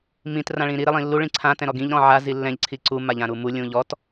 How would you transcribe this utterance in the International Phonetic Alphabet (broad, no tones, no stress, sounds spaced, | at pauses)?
m ĩ t r ã ɭ ĩ ɾ i ɾ ɪ lˠ ĩ lː u ɭ ĩ ǀʰ ã t ɛ̃ ɾ ɔ ɡ ĩ ʎ ɾ ɔ̃ ʕ a z i lː ɛ̃ ʎ ǀʰ i ǀ u m a ʎ ã ɾ u m u lʲ ũ ʎ ɔ t